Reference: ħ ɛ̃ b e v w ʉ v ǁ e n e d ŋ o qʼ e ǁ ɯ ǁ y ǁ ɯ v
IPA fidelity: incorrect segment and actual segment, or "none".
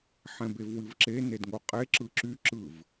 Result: ʉ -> ɨ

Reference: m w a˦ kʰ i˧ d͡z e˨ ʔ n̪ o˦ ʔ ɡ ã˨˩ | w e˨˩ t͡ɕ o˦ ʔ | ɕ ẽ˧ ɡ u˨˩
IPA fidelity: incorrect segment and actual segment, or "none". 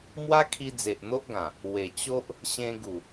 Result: none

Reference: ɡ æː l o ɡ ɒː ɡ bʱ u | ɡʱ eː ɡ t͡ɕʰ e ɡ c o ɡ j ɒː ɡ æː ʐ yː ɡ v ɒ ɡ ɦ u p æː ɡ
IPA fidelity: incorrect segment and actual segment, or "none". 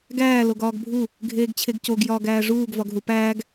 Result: yː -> uː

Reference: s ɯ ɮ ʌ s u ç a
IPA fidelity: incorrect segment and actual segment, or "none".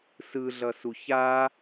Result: none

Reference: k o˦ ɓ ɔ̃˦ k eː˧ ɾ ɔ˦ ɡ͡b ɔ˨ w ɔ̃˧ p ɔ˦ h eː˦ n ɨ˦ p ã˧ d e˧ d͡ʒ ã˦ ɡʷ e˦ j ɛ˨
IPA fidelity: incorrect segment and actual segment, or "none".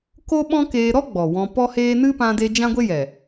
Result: none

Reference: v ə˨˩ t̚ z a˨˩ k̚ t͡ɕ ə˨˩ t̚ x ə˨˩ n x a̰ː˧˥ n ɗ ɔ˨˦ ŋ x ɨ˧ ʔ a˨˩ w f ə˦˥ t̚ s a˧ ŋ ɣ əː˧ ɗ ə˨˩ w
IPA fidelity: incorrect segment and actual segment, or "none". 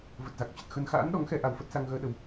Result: ɨ˧ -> ɛ˧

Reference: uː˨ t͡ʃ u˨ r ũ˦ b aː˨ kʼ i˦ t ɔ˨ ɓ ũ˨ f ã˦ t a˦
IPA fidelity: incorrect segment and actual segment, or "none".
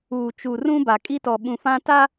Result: aː˨ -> a˨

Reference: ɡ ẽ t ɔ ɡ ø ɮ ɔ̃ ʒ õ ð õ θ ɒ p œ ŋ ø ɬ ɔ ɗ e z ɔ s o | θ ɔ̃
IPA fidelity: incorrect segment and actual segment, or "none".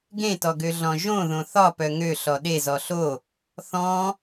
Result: s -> ɬ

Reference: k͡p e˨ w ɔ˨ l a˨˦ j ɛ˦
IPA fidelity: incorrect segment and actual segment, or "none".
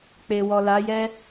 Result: none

